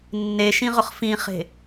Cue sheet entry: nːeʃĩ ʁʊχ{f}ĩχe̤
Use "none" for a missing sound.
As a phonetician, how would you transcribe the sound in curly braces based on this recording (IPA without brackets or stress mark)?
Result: f